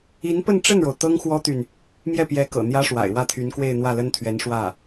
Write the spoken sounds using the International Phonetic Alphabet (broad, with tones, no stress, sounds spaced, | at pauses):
i˧˥ n p ə˥˧ n ʈ͡ʂ ə˥˩ n ɻ o˩ ʊ̯ t̪ ɤ˥ ŋ x w ɔ˥ t̪ y˨ n | m j ɛ˥˩ p j ɛ˧˥ k ɤ̰˨˩ n̪ j ä˥ ʂ w a̰˨˩ ɪ̯ w ä˥˩ t̪ʰ y˧˥ n k w e˥˧ ɪ̯ n̪ w ä˥˩ l ə˥ n t̪ʰ ɥ ɛ˧˥ n ʂ w ä˥˩